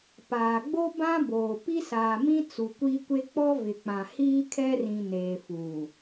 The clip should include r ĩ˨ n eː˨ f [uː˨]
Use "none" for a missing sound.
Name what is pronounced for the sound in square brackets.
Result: uː˨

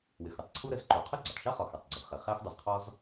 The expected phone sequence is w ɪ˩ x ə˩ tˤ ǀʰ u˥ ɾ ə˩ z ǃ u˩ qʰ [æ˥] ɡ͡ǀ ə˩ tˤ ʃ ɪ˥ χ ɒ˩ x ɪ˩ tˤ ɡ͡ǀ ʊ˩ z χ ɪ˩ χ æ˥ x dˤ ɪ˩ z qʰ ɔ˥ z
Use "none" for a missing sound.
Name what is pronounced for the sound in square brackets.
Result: ə˥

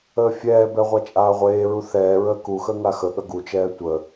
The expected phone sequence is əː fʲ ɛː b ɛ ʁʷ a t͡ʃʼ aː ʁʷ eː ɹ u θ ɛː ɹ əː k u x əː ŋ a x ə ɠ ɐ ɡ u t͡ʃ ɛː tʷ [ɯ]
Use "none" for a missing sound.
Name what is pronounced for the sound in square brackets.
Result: ə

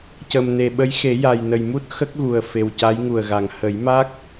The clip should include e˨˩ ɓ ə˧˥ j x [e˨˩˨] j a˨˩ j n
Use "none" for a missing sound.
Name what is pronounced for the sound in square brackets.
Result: e˨˩˦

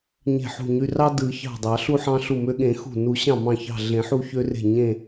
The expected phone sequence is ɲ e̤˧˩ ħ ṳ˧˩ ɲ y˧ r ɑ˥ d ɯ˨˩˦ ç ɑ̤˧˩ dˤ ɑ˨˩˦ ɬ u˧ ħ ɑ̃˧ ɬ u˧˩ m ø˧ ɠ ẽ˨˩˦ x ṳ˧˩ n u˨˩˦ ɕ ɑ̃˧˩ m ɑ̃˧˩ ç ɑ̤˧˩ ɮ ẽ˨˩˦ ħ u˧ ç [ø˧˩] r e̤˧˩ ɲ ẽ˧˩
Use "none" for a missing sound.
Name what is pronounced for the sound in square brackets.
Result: ø˧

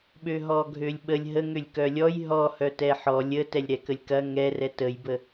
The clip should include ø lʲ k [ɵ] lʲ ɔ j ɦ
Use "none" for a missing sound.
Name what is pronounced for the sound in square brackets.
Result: œ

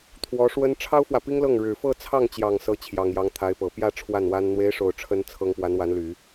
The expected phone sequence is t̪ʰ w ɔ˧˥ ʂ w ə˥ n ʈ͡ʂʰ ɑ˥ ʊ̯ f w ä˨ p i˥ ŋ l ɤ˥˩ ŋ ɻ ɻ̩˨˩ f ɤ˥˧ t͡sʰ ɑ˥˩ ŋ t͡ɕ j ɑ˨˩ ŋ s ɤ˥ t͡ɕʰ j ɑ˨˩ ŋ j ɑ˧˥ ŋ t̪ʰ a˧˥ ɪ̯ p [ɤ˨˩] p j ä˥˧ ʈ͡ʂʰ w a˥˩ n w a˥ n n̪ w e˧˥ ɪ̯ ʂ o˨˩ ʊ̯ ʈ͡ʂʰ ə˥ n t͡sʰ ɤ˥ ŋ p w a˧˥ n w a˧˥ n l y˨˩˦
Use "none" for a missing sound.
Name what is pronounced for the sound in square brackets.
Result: ɤ˨˩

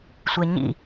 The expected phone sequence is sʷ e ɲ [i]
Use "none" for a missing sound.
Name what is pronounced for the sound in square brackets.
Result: ḭ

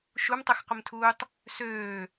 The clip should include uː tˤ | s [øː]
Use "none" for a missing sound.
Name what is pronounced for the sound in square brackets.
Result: øː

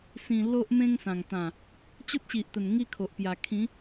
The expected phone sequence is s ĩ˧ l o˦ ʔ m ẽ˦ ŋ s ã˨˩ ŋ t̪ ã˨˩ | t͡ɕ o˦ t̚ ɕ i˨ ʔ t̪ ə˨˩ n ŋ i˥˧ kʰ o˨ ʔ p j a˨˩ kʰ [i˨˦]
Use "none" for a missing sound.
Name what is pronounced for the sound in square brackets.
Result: ĩ˨˦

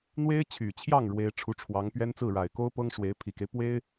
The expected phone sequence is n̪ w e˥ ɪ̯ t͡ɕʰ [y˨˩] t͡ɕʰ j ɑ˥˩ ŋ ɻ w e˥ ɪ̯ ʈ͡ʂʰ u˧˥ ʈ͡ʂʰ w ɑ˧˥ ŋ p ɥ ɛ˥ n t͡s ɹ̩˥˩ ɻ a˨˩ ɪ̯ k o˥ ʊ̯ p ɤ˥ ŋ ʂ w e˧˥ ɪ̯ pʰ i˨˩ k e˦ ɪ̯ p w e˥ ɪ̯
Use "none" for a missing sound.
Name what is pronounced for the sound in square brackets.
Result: y˨˩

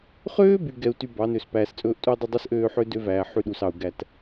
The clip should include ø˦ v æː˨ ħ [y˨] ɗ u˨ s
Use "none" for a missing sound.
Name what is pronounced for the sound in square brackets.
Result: y˦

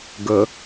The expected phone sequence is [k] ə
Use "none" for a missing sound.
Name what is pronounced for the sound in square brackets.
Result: ɡ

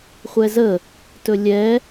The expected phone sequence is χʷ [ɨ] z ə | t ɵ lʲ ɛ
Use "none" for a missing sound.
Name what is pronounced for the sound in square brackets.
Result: ɛ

